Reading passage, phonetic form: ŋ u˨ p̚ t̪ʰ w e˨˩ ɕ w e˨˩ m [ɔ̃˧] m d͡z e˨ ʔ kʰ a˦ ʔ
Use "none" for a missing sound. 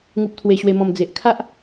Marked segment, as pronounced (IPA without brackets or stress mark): ɔ̃˨˩